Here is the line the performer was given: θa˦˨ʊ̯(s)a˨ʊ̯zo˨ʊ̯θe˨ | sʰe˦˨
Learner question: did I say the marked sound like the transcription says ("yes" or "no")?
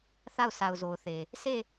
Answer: yes